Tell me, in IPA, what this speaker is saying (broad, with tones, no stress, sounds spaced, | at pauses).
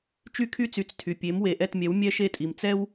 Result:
t͡ʃ y˥ kʰ y˥ t͡s y˩˥ t͡s tʰ y˩ pʲ e˩˥ m w e˩ ʔ ɛ˥˩ t mʲ ɛ˩˥ w mʲ ɛ˥ ʃ e˥˩ tʼ i˩ m t͡s ɛ˥ w